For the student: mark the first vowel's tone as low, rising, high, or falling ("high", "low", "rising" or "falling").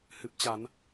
low